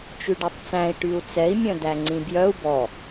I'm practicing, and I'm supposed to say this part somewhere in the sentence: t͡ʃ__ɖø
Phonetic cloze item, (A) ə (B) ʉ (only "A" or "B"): B